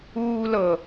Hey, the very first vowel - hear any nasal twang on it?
no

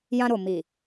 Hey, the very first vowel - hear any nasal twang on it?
yes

